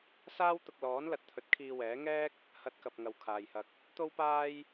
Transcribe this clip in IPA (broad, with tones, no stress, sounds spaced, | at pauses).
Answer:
s aː˥ w t̪ ʊ˧ k̚ l ɔː˨˥ n l ɐ˨ t̚ t̪ʰ ɵ˨˥ t̚ kʰ iː˧ w ɛː˨˥ ŋ ɛː˥ k̚ | h ɐ˧ t̚ k ɐ˨ p̚ ŋ ɐ˨ w kʰ aː˨ j h ɐ˧ k̚ | t̪ o˥ w p aː˥ j